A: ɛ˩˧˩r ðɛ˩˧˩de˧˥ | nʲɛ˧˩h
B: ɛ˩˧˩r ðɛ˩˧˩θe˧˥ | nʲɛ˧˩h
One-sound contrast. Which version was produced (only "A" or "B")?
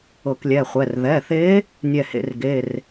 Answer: B